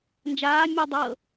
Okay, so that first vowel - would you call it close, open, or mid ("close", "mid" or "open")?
open